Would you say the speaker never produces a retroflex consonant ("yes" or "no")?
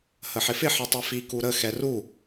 yes